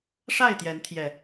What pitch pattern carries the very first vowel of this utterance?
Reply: falling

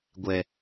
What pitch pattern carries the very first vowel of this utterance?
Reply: low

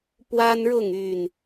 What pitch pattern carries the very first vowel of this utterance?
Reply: high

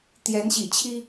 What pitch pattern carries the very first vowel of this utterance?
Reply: rising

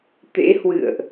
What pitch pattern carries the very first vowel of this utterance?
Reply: rising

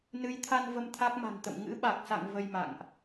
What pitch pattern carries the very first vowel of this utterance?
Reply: rising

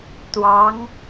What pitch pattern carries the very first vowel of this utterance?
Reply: rising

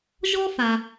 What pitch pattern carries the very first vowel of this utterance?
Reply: high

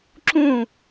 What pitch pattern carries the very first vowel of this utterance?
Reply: falling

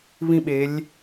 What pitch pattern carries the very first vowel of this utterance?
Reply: high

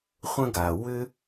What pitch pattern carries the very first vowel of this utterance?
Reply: high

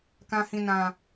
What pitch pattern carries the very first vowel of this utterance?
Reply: low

